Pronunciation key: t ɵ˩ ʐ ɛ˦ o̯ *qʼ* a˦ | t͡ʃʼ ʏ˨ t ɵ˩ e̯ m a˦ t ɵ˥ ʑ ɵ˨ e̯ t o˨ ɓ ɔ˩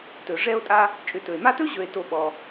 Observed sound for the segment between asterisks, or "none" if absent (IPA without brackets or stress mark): tʼ